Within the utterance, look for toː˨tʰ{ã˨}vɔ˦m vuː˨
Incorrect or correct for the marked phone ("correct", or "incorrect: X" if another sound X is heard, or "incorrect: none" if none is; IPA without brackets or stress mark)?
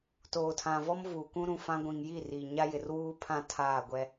correct